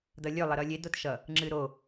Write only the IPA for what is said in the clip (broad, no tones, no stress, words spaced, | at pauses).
dʌlʲø lˠəɾʌlʲe dotʃʌ | ŋ͡ǁɨɾo